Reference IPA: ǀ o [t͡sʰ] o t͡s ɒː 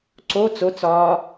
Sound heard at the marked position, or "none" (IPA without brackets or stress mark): t͡s